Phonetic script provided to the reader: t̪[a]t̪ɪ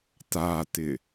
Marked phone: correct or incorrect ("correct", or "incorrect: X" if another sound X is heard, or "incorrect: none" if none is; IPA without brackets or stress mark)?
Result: correct